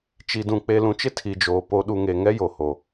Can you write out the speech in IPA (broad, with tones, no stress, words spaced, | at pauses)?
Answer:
t͡ʃi˨dũ˨ k͡pe˨lũ˨t͡ʃɪ˦ tʰi˨d͡ʒoː˨ po˨ɗu˨ ŋe˨ŋɛ˦jo˨ ho˨